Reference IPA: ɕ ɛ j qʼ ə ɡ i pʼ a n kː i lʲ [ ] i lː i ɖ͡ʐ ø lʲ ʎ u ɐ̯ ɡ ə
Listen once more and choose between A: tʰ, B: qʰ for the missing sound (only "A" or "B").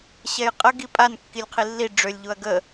B